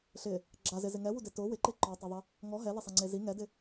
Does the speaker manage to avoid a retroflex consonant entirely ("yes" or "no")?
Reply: yes